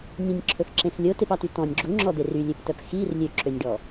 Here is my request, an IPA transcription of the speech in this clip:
nʲẽnʲǁʰɵxǁẽx lʲotepɑty tɔ̃nʲ ɡ͡ǁuŋ͡ǁɔd̪e rylʲøptœp xir lʲøǁønʲɖɔ

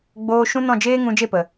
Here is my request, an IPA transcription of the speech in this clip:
ɡ͡boː˧ ʃũ˦nɔ̃˦˨ d͡ʒeː˦ŋũ˧ d͡ʒe˦˨pə˨

